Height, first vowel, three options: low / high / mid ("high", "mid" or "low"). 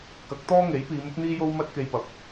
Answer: low